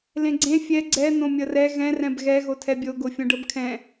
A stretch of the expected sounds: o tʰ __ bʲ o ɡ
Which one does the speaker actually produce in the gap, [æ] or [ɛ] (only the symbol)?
ɛ